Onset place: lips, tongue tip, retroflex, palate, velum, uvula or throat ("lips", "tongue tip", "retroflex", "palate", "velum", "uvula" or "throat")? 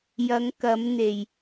palate